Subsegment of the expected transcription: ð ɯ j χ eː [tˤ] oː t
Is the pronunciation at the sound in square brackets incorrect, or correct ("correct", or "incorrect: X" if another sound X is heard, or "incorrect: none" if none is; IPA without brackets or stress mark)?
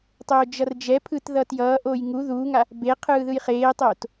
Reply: correct